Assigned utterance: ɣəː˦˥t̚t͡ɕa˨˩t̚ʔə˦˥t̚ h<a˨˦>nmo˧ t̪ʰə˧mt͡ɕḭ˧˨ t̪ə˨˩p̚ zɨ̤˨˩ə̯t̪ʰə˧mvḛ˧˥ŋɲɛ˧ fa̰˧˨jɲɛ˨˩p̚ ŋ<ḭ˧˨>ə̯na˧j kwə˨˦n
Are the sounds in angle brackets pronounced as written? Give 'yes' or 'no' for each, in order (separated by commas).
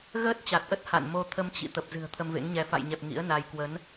no, no